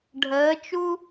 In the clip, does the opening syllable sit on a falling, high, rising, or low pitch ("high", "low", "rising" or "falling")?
rising